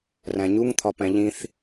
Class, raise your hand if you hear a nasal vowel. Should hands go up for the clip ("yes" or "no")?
yes